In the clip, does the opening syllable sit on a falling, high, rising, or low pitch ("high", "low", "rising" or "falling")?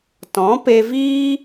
rising